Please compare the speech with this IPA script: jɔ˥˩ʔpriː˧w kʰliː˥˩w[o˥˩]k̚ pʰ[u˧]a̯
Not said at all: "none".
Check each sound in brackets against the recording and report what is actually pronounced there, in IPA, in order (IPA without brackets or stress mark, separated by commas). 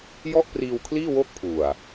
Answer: o˥˩, u˨˩